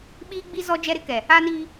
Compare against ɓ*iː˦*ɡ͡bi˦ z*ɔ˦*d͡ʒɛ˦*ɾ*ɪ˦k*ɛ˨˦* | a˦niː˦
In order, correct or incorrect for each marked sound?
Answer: correct, correct, correct, incorrect: ɛ˨

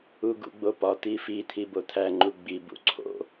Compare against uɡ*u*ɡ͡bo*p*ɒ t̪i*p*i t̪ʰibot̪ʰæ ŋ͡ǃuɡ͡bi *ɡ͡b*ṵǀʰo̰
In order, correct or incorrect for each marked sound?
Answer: incorrect: ṵ, correct, incorrect: f, incorrect: b

